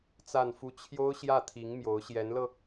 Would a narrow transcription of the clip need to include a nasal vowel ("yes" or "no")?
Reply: no